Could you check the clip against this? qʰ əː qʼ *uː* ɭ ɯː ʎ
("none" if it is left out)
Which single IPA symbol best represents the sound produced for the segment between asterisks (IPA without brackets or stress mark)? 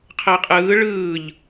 ɯː